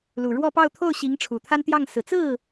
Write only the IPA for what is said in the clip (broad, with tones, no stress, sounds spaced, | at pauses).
l u˨˩ ɻ w ɔ˥˧ p ɑ˥˧ ʊ̯ t̪ʰ o˥˩ ʊ̯ ɕ i˧˥ ŋ ʈ͡ʂʰ u˨˩ t̪ʰ a˥ n t̪ j ɑ˥˩ ŋ s ɹ̩˨˩ t͡s ɹ̩˥˩